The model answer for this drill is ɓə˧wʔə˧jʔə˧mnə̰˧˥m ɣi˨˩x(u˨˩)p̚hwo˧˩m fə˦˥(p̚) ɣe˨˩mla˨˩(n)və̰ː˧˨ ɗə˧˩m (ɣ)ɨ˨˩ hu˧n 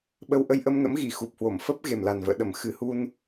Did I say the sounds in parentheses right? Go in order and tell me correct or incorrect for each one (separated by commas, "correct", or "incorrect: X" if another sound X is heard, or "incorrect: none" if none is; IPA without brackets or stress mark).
correct, correct, correct, incorrect: x